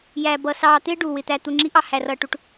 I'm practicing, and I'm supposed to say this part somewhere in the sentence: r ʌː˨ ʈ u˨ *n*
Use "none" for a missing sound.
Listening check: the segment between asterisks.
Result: ʈ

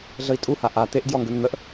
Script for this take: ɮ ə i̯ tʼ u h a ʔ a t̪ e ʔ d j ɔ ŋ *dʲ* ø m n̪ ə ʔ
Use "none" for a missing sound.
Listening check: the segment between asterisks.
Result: ɡ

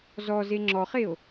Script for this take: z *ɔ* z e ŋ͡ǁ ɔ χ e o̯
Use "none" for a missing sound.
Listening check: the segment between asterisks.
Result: ɔ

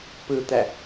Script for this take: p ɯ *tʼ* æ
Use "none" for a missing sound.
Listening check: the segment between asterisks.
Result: t̪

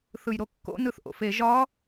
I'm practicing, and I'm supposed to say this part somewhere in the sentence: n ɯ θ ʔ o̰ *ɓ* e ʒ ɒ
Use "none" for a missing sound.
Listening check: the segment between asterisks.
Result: f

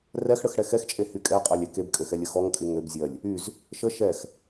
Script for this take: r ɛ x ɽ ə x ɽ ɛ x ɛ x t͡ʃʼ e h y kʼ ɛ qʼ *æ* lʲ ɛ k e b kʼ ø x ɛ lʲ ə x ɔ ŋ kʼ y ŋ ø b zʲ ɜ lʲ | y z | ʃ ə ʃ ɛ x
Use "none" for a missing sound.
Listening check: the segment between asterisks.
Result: a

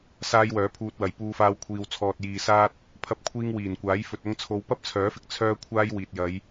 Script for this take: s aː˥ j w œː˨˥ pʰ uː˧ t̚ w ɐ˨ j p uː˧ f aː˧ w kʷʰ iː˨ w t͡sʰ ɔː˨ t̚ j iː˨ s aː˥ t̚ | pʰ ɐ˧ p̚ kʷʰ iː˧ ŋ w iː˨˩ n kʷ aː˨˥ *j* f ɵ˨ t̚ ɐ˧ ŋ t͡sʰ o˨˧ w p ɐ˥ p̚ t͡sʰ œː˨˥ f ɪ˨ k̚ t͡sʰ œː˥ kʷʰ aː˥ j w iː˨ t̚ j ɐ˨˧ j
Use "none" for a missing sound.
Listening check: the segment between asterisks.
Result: j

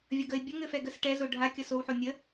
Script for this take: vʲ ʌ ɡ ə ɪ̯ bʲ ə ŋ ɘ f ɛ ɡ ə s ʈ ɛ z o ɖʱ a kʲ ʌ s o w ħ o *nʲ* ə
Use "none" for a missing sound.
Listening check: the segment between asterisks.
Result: nʲ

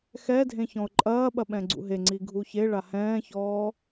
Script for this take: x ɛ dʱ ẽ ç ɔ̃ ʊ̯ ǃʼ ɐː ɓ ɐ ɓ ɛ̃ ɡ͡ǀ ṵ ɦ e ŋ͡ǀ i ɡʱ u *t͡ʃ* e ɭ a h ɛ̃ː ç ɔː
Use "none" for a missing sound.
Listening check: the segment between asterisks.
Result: ç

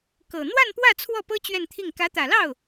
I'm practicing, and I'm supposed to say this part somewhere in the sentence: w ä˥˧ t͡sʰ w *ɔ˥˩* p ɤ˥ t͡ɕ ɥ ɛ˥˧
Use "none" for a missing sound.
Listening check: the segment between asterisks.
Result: ɔ˥˩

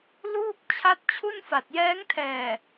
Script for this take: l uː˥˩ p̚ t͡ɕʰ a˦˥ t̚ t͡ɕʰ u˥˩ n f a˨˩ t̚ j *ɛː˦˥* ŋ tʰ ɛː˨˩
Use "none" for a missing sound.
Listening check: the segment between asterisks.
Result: ɛː˦˥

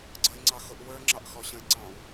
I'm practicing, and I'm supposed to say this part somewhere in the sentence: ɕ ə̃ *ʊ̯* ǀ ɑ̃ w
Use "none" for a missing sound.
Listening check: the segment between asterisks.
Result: ɪ̯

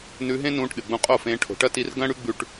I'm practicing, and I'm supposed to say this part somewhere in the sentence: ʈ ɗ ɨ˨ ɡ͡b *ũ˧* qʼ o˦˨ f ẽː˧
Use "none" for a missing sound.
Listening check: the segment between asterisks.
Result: ũ˧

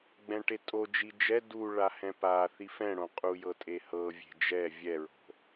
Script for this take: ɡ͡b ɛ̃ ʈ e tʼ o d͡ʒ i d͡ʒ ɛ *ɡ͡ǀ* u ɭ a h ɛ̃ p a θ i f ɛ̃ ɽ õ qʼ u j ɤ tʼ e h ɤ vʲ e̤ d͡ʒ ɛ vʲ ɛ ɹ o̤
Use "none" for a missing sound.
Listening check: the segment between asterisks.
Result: d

